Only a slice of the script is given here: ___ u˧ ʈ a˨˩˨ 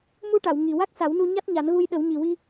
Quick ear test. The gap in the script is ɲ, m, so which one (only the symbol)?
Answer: m